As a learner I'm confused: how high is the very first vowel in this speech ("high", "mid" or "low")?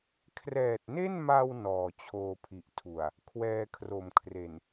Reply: mid